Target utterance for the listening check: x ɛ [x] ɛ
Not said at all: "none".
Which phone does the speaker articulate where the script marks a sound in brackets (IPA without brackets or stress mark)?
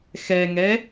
ŋ